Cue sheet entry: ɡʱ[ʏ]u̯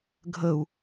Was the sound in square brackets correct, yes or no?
no